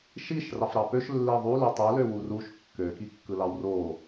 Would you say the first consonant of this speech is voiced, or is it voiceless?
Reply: voiceless